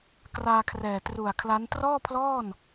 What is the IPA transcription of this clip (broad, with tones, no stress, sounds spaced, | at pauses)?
k r aː˧ kʰ r ɛː˨˩ t r u˨˩ a̯ kʰ l a˦˥ n t r ɔː˥˩ pʰ l ɔː˥˩ n